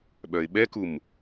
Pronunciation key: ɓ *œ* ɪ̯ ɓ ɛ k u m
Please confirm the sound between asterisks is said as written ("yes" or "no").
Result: yes